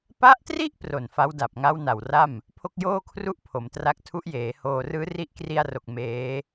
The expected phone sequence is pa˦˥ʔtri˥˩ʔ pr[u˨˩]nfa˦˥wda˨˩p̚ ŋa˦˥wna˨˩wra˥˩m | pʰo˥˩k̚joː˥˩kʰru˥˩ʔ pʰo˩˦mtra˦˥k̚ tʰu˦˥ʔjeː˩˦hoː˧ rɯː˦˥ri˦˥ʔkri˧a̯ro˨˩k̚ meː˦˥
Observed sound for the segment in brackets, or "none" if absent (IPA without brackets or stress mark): o˨˩